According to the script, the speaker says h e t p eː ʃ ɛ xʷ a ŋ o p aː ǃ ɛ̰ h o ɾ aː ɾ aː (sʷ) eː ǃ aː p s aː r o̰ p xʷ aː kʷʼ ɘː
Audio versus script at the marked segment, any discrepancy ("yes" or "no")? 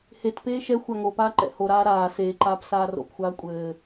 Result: yes